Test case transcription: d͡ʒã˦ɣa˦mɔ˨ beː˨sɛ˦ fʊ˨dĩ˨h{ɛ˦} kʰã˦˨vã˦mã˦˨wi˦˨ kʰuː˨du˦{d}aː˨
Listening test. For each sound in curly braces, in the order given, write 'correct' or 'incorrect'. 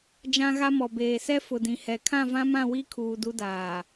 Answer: incorrect: ɛ˨, correct

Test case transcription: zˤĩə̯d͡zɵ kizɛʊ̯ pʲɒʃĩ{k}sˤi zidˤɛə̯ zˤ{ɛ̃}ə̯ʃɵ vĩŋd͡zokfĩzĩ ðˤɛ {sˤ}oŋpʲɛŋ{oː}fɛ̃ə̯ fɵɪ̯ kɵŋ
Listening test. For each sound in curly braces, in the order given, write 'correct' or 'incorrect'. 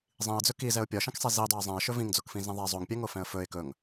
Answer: correct, correct, incorrect: zˤ, incorrect: o

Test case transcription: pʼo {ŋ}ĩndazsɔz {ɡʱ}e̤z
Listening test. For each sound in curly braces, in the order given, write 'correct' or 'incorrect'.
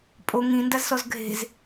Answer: correct, correct

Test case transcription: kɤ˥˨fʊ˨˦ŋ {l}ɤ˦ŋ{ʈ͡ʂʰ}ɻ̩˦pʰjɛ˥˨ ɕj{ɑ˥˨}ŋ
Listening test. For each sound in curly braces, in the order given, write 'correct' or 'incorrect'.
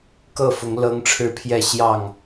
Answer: correct, correct, correct

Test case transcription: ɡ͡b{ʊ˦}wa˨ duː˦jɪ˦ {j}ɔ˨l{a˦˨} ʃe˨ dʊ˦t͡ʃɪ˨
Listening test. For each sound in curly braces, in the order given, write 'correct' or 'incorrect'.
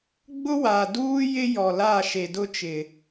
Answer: correct, correct, correct

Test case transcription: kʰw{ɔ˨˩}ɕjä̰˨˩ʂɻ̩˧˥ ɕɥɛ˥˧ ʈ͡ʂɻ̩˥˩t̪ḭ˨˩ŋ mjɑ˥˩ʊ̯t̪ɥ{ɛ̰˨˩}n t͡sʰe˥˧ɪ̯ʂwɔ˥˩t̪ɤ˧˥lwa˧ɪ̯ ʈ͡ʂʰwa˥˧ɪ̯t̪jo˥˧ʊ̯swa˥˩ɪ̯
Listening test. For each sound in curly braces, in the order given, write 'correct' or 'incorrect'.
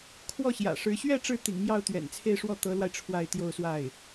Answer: incorrect: ɔ˥˩, correct

